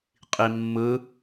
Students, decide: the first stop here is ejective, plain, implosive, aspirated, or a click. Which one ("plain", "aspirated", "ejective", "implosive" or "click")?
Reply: ejective